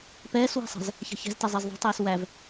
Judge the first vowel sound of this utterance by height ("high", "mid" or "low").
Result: mid